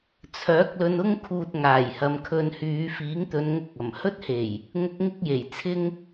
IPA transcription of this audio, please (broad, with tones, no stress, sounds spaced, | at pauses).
t͡sʰ œː˨˥ k̚ l ɵ˧ n ʊ˥ ŋ kʰ uː˧ t̚ ŋ aː˨˩ j h ɐ˨˧ m kʰ ɵ˧ n h yː˨˧ f iː˨˥ ŋ t̪ ɵ˨˧ n ŋ ʊ˧ k̚ ɐ˨˩ m h ɵ˥ t̚ h e˨˩ j | ŋ ʊ˧ k̚ ŋ ɪ˥ k̚ j e˨˩ j t͡sʰ ɪ˥ ŋ